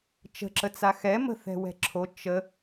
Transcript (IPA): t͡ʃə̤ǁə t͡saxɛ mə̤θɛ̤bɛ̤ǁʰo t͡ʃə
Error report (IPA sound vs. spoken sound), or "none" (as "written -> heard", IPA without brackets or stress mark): b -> w